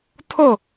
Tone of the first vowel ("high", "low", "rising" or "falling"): falling